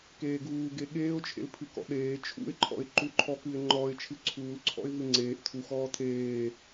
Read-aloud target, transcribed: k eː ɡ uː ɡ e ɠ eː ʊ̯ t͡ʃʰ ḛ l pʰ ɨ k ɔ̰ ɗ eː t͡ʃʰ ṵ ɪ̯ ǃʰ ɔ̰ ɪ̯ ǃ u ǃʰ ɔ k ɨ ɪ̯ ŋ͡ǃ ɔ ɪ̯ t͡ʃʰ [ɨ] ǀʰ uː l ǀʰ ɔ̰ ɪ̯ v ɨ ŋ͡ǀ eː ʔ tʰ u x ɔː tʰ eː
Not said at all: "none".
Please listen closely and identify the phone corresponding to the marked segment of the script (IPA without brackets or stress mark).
ɨ